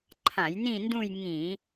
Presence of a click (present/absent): present